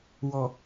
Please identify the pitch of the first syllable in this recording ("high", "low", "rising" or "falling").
low